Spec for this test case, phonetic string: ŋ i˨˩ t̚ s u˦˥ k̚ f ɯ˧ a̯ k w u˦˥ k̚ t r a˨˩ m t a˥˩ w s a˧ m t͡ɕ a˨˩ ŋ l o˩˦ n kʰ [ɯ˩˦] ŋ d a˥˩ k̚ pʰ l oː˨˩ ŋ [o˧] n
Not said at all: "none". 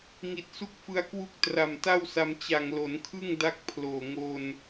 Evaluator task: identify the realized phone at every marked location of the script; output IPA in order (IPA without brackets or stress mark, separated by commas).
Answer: ɯ˥˩, o˧